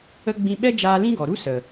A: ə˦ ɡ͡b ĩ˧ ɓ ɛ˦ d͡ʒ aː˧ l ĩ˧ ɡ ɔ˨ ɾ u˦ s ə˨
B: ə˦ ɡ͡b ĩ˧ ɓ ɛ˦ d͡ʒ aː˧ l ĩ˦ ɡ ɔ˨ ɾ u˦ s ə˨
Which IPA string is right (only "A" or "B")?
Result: B